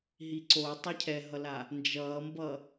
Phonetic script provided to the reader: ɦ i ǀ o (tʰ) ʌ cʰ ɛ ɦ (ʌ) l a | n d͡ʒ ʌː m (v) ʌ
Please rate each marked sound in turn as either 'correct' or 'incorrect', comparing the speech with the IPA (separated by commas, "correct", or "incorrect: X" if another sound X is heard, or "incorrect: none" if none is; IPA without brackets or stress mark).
incorrect: tˤ, correct, incorrect: b